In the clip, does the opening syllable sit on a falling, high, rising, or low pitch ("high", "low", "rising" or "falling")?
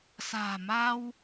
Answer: low